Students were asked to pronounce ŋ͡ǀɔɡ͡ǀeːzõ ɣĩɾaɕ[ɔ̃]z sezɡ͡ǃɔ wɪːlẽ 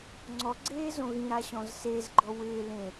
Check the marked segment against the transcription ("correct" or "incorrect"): correct